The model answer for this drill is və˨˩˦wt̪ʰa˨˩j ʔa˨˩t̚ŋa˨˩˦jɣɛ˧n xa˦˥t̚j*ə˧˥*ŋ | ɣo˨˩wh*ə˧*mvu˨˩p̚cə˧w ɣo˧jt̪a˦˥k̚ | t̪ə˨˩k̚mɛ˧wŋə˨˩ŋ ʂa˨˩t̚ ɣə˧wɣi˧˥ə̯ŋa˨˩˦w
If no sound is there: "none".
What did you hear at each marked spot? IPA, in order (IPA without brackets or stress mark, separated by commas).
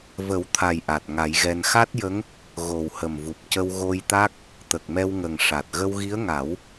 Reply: ə˧˥, ə˨˩